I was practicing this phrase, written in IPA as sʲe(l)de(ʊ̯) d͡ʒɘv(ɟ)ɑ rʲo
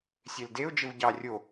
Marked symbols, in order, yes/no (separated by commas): yes, yes, yes